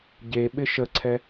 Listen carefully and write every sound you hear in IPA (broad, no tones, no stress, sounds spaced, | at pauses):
ɟ e ɓ ɪ ʃ ə ǀʰ ɛ